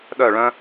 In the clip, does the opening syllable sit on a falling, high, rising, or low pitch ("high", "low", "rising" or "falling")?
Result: falling